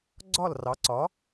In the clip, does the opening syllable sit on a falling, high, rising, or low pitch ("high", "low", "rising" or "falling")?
falling